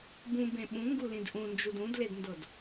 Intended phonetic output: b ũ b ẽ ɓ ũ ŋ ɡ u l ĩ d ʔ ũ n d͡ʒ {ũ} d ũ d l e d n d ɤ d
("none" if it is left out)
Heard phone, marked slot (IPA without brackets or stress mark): u